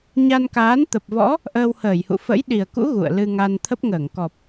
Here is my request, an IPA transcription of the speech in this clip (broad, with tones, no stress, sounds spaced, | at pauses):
ɲ a˧ n k aː˨˦ n t̪ ə˨˩ p̚ v ɔ̰˧˥ | ʔ əː˧ w h əː˧˩ j h ṵ˧˨ f ə̰˧˥ j ɗ i˨˩ ə̯ k ṵ˧˥ ɣ ṵ˧˨ ə̯ l ɨ˧ ŋ a˧ n t̪ʰ ə˦˥ p̚ ŋ əː˧˩ ŋ k ɔ˨˩ p̚